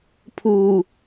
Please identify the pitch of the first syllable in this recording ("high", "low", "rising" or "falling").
low